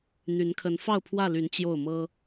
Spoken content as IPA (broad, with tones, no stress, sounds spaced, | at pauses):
n̪ y˨˦ n kʰ ə˨˦ n f ɑ˥˨ ʊ̯ pʰ w ä˥˨ l y˨˦ n t͡ɕ j o˥˨ ʊ̯ m ɤ˦